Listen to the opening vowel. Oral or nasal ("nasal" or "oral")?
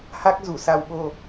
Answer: oral